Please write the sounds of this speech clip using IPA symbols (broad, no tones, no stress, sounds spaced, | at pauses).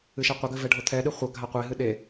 ɨ ʃ ɛ qʷ ɐ ɡ ɘ v ɛ ɖʱ o t̪ʰ ɛ ɗ ɨ χʷ ɐ ɡʱ a qʷ e ɦ ɨ ɗ e